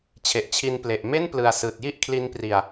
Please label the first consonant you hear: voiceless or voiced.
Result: voiceless